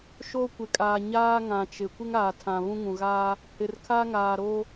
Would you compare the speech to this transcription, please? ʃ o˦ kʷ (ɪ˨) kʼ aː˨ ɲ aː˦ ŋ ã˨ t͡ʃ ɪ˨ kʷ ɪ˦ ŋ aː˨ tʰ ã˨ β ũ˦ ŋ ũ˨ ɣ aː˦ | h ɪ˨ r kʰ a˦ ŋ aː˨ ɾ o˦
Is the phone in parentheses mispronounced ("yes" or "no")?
no